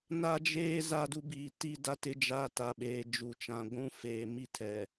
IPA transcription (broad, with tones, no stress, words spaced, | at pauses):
na˦d͡ʒeː˦ za˦du˦ biː˨ti˦ da˦tɪ˦d͡ʒa˦ ta˨ɓeː˨d͡ʒu˨t͡ʃã˨ ɡʷũ˦feː˨mi˦tʰɛ˨